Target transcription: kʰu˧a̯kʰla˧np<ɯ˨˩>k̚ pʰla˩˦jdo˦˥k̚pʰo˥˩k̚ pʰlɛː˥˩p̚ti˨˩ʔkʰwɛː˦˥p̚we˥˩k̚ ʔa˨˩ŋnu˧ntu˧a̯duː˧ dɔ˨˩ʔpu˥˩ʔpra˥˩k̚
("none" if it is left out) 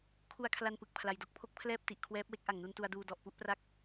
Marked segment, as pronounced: ɯ˨˩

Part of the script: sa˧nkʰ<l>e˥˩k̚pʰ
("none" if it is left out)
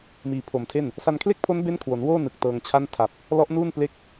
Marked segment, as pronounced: l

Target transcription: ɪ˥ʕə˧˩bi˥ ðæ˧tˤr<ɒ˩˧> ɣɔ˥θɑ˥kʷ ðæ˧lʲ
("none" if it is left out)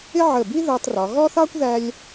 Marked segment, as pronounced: ɒ˩˧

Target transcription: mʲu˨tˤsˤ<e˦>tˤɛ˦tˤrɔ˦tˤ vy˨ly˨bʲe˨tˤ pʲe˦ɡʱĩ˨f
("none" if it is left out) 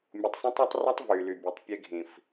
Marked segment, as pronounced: ẽ˦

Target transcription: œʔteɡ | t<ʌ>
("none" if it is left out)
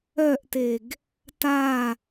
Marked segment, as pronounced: a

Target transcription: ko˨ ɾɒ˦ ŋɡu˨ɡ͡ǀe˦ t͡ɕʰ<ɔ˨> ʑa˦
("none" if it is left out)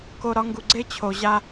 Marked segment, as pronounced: o˨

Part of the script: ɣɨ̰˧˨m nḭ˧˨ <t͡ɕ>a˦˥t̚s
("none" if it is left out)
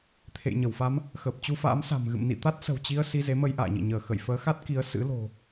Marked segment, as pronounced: t̪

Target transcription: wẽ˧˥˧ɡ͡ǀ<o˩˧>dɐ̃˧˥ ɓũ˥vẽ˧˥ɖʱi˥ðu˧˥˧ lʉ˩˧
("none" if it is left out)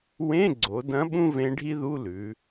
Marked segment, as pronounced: o˩˧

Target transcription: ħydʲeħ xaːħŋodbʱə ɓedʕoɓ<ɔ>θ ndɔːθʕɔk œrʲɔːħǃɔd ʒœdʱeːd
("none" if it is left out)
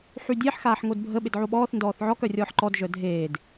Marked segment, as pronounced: ɔː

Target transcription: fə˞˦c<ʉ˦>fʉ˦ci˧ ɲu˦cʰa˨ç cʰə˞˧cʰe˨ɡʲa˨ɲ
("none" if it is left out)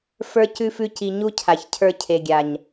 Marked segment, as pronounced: ʉ˦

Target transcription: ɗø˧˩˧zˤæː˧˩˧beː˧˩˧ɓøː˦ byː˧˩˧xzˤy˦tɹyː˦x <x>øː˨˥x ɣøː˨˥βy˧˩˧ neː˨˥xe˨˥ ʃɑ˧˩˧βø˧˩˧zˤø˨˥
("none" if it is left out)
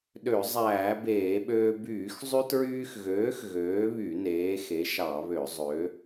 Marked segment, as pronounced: ɣ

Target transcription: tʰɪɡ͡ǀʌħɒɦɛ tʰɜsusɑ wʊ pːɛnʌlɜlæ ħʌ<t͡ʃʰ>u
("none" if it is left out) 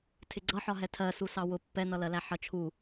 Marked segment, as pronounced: t͡ʃʰ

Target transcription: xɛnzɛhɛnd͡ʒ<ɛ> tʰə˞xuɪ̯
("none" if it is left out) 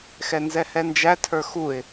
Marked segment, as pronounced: æ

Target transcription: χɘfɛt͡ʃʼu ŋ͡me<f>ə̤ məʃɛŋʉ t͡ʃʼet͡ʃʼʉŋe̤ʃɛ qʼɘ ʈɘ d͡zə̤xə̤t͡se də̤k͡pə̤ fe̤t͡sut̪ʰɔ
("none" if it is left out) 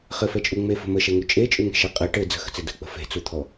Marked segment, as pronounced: f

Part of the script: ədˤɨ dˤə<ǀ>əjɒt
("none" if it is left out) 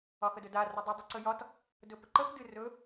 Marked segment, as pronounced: ǀ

